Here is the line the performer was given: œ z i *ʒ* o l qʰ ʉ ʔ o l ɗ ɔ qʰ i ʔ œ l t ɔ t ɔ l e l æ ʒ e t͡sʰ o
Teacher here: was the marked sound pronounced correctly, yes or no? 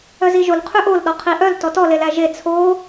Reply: yes